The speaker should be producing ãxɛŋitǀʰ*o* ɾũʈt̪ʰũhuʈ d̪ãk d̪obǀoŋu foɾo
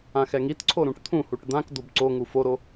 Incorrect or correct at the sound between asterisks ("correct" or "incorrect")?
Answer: correct